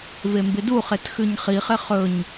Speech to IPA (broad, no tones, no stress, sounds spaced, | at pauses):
v e m b ɪ d u χ e t x ʉ ɲ χ i χ ɪ χ ɵ ɲ